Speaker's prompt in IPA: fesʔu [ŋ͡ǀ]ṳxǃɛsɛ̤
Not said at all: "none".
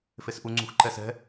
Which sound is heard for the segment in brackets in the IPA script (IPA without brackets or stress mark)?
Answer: ŋ͡ǀ